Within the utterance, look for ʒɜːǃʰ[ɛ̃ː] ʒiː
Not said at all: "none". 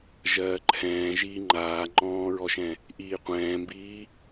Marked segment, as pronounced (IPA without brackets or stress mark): ɛ̃ː